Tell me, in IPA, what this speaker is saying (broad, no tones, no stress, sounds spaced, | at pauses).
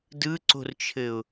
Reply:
d ɯ ǀ o̤ r t͡ʃʰ ɘ ʊ̯